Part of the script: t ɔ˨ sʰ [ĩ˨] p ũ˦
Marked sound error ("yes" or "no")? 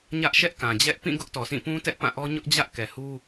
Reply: yes